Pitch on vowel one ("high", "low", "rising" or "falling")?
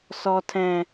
low